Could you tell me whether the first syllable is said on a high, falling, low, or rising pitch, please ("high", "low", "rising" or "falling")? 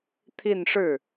falling